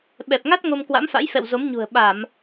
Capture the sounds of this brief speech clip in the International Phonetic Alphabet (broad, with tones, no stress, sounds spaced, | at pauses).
ɓ ɛ˨˩ p̚ ŋ a˦˥ t̚ ŋ o˧ m k w a̰˧˥ m f a̰˧˥ j f ɛ̰˧˨ w z o˨˦ m ɲ ṳ˨˩ ə̯ ɓ a˧˩˨ m